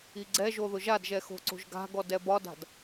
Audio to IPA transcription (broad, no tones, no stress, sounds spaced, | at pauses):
i ɡ͡ǀ ɛ ʒ o ð ʊ ʒ a d ʒ ɛ x o̤ ǀ o̤ ʒ ɡ a̤ ɡ ɔ d ɛ b ɒ d a̤ d